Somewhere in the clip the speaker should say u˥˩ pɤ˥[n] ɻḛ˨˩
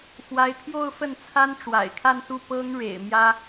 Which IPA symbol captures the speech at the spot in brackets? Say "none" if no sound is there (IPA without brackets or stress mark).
ŋ